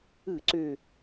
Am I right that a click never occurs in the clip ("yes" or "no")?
no